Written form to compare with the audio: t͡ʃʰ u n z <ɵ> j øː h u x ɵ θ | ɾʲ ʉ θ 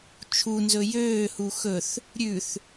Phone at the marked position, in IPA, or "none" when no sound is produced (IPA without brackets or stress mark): ɵ